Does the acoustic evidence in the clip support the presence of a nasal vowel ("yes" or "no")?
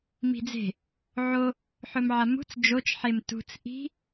no